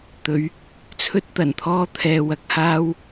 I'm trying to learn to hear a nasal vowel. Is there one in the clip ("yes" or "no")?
no